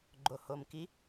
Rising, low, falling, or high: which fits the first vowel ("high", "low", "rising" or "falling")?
low